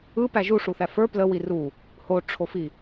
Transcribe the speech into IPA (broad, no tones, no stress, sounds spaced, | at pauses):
ɯ p æ ʒ u ʂ u θ æ f ə˞ p l ə w i r u | h o ʈ͡ʂʰ o f i